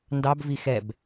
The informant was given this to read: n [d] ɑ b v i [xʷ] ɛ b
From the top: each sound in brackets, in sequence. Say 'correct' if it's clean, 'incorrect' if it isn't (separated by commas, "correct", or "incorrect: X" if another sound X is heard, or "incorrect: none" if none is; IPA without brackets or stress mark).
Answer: correct, incorrect: x